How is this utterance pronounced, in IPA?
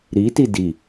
ɾiti di

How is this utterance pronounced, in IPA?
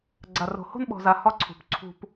ɡ͡ǀa˧ro̤˧ ho̤˥nɓɔ̤˧za˧ hɒ˥ǀʰṳ˧p ǀʰṳ˧p

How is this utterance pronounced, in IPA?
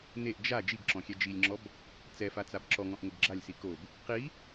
neʔ d͡ʒa d͡ʒiɡǁɔ̃xʲɛ d͡ʒilʲŋ͡ǁɔb | t͡sɛfat͡sab ǁɔŋɔ̃ʔŋʊɡ ɡ͡ǁalʲsi kob | qi

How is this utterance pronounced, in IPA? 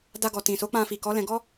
da˧ɡɔ˨ tĩ˨so˨˦ k͡pã˧fi˨kɔ˨˦lɛ̃˧ ɡɔ˦

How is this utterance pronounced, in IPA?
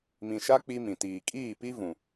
mĩ˨ʃa˦ k͡pi˦mĩ˨ tiː˨ kʼiː˦˨pi˦vũ˨

